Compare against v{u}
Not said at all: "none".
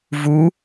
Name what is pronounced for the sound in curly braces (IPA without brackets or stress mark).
u